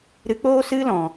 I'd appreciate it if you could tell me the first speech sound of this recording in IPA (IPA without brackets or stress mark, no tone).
ɾ